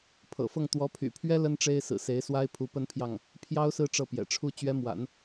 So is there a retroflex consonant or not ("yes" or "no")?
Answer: yes